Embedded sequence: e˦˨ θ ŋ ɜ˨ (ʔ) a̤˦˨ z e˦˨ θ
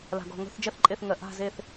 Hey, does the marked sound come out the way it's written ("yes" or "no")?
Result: yes